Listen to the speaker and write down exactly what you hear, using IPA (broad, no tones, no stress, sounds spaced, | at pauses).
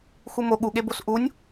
x u m o ɠ u ɠ e b o s ʔ u nʲ